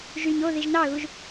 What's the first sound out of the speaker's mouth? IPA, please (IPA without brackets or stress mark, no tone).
ʒ